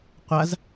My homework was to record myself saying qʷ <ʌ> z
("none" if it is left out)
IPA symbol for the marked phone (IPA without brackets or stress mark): a